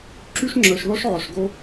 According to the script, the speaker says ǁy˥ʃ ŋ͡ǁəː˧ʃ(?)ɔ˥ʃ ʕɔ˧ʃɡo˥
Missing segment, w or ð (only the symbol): ð